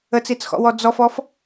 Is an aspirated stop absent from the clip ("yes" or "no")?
yes